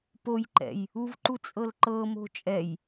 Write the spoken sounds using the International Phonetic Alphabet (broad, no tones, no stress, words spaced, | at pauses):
pojǃɛ̰j | uvǃu t͡sʼɤlǃɤmo̤ t͡ʃʼɛj